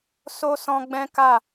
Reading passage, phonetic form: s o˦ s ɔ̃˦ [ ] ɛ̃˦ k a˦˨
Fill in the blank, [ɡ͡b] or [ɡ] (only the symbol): ɡ͡b